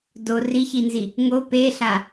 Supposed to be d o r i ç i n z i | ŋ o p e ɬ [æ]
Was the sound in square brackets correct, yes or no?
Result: no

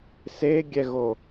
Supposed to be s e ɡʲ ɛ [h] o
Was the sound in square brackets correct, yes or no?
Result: no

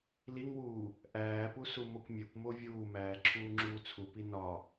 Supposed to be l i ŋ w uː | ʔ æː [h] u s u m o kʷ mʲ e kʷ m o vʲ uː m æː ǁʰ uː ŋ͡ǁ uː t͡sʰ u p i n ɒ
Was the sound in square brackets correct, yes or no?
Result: no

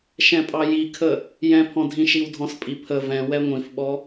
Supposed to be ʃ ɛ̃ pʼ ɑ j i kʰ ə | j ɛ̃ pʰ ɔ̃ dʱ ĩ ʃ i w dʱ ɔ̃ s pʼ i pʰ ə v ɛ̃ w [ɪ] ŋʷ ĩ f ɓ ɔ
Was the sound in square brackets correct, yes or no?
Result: no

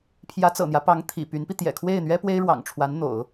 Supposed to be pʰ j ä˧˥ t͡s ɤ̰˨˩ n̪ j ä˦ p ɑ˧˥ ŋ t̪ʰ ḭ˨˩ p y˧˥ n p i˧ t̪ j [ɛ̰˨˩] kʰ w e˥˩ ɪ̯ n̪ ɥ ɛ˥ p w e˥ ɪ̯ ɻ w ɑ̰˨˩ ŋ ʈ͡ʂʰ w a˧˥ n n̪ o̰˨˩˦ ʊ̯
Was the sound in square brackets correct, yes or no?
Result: yes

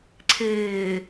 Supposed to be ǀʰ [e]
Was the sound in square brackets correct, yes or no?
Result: no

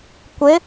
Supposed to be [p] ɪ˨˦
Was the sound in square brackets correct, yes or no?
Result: no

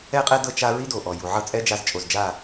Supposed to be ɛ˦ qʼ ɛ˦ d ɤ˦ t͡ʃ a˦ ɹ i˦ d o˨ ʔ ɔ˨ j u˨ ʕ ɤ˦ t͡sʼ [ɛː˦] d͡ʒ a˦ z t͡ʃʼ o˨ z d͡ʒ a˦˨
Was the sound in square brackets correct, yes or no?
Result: no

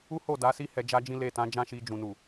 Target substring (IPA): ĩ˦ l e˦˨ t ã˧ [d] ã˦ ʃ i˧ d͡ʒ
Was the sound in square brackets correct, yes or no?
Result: no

